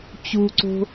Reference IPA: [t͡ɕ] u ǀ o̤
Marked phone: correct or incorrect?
correct